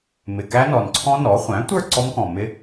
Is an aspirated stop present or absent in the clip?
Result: present